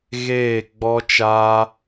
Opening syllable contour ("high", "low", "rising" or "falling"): falling